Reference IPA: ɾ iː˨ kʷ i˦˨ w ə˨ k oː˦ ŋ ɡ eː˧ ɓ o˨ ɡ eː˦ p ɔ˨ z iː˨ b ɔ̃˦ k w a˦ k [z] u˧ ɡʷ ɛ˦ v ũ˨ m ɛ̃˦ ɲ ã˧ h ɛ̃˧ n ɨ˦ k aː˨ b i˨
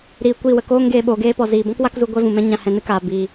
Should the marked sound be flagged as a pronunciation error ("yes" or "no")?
no